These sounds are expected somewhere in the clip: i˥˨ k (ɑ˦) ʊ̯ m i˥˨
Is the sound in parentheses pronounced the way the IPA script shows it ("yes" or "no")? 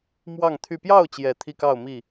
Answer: no